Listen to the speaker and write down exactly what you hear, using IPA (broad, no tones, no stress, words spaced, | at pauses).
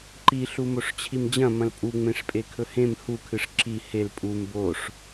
ǃiɬu moʂt͡ɕʰimd͡ʑɐ̃ mɐ̃lpʼu ŋ͡mẽʂpʼekʰɵhẽm hukʰɨʂ ǁi hel pʼum boʂ